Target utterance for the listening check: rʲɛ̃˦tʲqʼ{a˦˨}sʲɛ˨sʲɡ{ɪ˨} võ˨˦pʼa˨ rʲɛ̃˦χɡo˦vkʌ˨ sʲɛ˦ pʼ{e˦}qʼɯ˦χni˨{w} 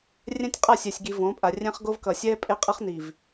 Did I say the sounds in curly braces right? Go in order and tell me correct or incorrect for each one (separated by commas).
correct, incorrect, correct, incorrect